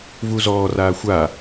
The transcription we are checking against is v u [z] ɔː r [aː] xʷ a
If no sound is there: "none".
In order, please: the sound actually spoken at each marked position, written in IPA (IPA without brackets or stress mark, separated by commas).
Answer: z, aː